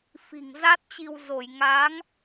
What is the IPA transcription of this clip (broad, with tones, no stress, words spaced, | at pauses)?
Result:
fi̤˨˩ŋ za˦˥t̚t͡ɕi˧w zo˧˩jŋa˨˦ŋ